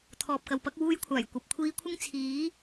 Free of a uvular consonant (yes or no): yes